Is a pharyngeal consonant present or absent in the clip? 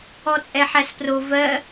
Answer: present